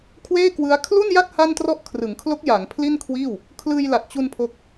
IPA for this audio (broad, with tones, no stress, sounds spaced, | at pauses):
kʰ w eː˥˩ k w ɯ˦˥ a̯ kʰ l u˥˩ n j a˥˩ t̚ h a˥˩ n t r ɔ˥˩ ʔ kʰ r ɯ˩˦ ŋ kʰ l o˦˥ k̚ j a˩˦ ŋ pʰ l i˥˩ n kʰ w iː˥˩ w | kʰ l ɯː˧ j l a˨˩ t̚ t͡ɕ u˧ n pʰ o˦˥ k̚